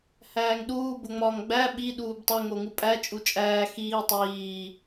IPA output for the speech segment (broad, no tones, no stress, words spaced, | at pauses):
hæːŋɗuː boŋ͡mɒːŋɡ͡bæ ɓi ɗuːbtˤe ŋoŋupʼæ t͡ʃʼut͡ʃʼæː xiː tˤiː